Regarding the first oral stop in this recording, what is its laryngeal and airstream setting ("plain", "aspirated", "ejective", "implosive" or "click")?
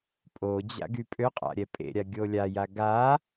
ejective